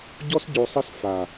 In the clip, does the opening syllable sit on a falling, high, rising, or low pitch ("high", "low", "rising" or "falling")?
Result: high